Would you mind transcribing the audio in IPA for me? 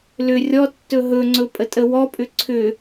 l ʏ rʲ ɔ tː ɵ ɦ ɵ ŋ͡ǀ ɵ pʼ ə tʼ ə w ɔ pʼ ʏ ǀʰ ʏ

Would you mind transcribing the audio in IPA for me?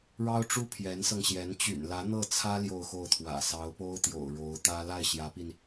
ɻ ɑ˥ ʊ̯ ʈ͡ʂ u˥ pʰ j ɛ˧˥ n s ɤ˧ ŋ ɕ j ɛ˧˥ n t͡ɕ y̰˨˩ n l ä˧˥ n̪ ɤ˥˩ t͡sʰ ä˥ l j o˥˧ ʊ̯ x o˥˩ ʊ̯ t̪ʰ w ä̰˨˩ s ɑ˧˥ ʊ̯ p o˥ ʊ̯ t̪ j o̰˨˩ ʊ̯ ɻ o˧˥ ʊ̯ t̪ ä˥ l a˥˩ ɪ̯ ɕ j ä˧˥ p i˧ n

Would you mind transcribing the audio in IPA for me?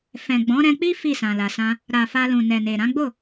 f ɛ̃˨ ɡ͡b ɔ̃˨˦ ɾ ɛ̃˧ k͡p i˦ f i˦˨ s ã˨ l a˨ s ã˧ | ɾ a˨ f a˧ l ũ˨ n ɛ˨ n e˨ ɾ ã˨˦ ɡ͡b o˦˨

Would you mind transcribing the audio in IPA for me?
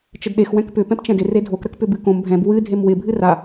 t͡ʃ ə d ɗ e x w ɛ̃ k p ʏ p ɛ̃ p t͡ʃ ɛ̃ d ɪ r e dʱ o k ɾ ə k p ʏ b ɨ k õ m bʱ ɛ̃ b w ɨ dʱ e m w ɪ bʱ ɨ r a

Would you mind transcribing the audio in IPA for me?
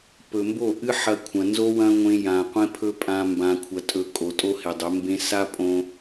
p ɵ˨ m b o˦˨ ʔ ɨ˦ ħ ɐ˧ kʷʰ ɐ̃˨ n z o˦ w ɐ̃˦ ŋʷ ẽ˧ j ã˨ qʷ ẽ˦ pʰ ɵ˦ pʼ ã˧ m b ã˨ kʷʰ ɐ˨ tʼ ɵ˨ kʼ o˨ tʼ o˦ h e˨ dˤ ɵ˨˦ m b ẽ˧ s a˦ pʼ õ˧

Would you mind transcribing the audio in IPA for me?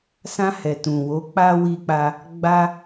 s ã˧ h ɛ˨ t ũ˨ w o˨˦ k͡p a˧ w i˧ k͡p a˧ | ɡ͡b a˦

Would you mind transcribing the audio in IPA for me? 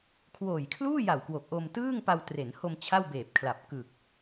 kʰ w oː˨˩ j kʰ l uː˥˩ j a˨˩ w k w o˨˩ k̚ ʔ o˧ m t ɯː˥˩ ŋ p a˧ w t r e˩˦ n h o˧ m t͡ɕʰ a˥˩ w b eː˨˩ p̚ kʰ l a˨˩ p̚ k ɯ˨˩ k̚

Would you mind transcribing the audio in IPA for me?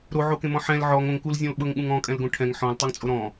ɾ o ʕ o k ẽ m ɔ̃ ħ ɛ̃ l ʕ ɔ ŋ õ ŋ k u l zʲ ɔ̃ l ɓ ɤ ŋ ɠ ũ ŋ ɔ̃ kʼ ɛ̃ l ɡ õ ʈʰ ɛ̃ ŋ ħ ɔ̃ l tˤ o ŋ t͡sʼ o ɾ ɔ̃

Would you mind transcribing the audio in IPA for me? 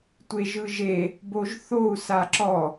tʷ e ʒ ɯ ʒ e | b o ʒ θ o u̯ s a ǁ ɔ

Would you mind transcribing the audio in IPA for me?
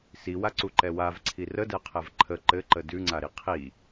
s i w a ǀ u ǃ ɛ w a v ǀʰ i r ə d ɛ qʰ ɛ v ǃʰ ə ǃ ɘ ǃ ə d ʉ ŋ͡ǀ a ɾ i qʰ i

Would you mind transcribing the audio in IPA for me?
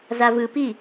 z a v ɯ p i

